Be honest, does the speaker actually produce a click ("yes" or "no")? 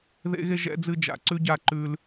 yes